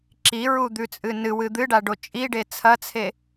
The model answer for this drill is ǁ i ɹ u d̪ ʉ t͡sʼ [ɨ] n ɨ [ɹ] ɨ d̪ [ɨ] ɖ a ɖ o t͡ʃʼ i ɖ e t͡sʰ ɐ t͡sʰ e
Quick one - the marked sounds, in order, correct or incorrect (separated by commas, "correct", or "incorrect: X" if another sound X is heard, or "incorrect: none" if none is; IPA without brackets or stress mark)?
correct, incorrect: w, correct